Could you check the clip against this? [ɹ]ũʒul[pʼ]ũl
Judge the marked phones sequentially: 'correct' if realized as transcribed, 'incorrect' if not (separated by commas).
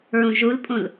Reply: correct, correct